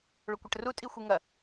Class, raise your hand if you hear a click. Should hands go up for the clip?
no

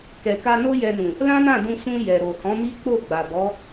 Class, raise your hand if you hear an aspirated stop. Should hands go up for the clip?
no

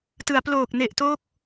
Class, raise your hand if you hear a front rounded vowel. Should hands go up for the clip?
no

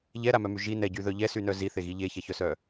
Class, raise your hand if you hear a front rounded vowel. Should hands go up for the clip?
yes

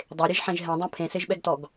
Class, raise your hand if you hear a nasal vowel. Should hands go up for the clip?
yes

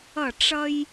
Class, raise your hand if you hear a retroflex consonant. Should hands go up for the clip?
yes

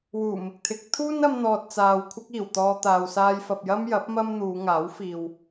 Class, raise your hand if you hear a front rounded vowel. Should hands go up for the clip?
no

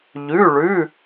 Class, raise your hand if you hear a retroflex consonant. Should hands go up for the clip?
yes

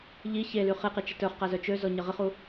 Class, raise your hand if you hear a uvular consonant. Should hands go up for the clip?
yes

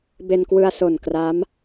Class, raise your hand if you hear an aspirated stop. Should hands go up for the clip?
no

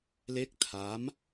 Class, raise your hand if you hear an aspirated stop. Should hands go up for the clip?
yes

